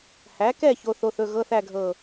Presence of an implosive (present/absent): absent